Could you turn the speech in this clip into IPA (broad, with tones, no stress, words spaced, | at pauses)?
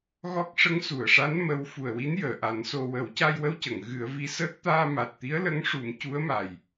ɣɔ˦˥k̚ ʂə˧˥ŋsu˨˩˨ə̯ʂa˧˥n mə˧˥w fu˨˩ə̯wi˧˥n jəː˨˩˨ʔa˨˩˦nso˧ wə˨˩˦wca˧jwə˧wcə˨˩˨ŋ ɣɨ˨˩˦ə̯vi˧˥səː˦˥k̚ t̪aː˧ma˨˩t̚t̪i˧˥ə̯ lə˧˥ŋʂu˨˩˦m cu˧˥ə̯ma˨˩j